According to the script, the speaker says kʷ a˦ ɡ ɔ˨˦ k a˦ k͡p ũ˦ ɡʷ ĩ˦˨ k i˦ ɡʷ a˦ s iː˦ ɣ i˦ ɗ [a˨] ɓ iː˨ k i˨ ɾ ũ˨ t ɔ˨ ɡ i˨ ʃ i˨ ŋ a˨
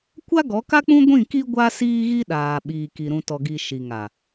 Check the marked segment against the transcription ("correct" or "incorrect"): incorrect